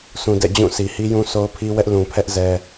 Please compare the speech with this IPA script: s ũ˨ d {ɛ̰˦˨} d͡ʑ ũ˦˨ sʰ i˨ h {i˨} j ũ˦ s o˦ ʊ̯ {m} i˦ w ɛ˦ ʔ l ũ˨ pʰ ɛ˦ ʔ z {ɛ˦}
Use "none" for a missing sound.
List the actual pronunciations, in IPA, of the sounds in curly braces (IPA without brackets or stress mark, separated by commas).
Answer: ɛ̰˦˨, i˦, pʰ, ɛ˦